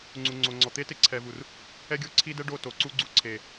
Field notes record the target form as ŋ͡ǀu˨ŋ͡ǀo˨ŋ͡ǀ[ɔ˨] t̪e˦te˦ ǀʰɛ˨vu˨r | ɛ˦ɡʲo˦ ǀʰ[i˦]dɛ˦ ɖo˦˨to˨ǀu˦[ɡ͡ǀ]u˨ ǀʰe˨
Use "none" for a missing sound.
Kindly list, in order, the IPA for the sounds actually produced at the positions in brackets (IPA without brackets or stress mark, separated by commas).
ɔ˨, i˦, ɡ͡ǀ